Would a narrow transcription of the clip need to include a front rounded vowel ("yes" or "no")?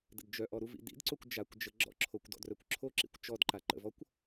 yes